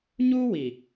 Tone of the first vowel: high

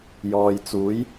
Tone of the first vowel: low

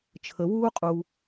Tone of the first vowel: low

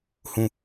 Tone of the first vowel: falling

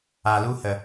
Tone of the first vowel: low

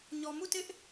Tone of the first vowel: low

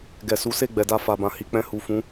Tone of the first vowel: low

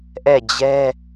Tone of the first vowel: falling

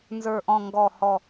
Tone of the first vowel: low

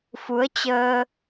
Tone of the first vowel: rising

